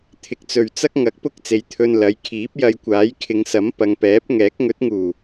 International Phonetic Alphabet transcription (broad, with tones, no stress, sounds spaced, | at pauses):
t̪ʰ ɪ˨ k̚ t͡s ɵ˨ ɥ t͡s ɐ˥ k̚ ŋ ɐ˨˥ k̚ p ʊ˥ k̚ t͡s e˨˧ j t̪ʰ ɵ˧ n l ɐ˨˥ j kʰ iː˨˥ p̚ j ɐ˧ j kʷ aː˨˥ j kʰ ɪ˨˧ ŋ s ɐ˨˥ m p ɐ˨ ŋ p ɛː˨˥ p̚ ŋ ɛː˨˥ k̚ ŋ ɵ˨˥ t̚ ŋ uː˨˩